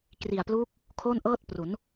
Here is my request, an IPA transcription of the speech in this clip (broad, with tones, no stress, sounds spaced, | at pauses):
k r i˨˩ a̯ p l uː˦˥ k̚ | kʰ o˥˩ n ʔ ɤː˥˩ t̚ p r u˩˦ n